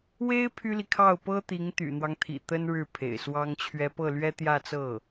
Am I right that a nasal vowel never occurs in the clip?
yes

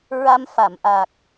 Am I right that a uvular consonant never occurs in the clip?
yes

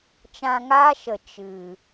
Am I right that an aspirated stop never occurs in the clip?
yes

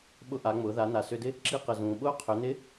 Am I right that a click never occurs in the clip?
no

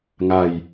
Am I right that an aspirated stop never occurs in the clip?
yes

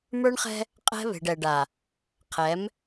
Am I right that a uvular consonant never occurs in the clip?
no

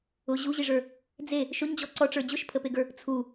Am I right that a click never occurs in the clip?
no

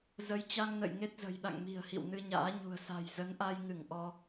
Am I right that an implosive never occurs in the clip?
no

